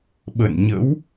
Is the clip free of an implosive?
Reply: no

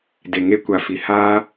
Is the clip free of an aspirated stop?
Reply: yes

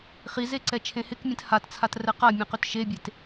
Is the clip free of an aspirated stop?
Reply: no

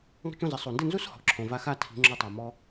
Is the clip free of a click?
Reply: no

